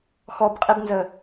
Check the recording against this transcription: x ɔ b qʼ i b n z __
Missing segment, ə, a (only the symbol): ə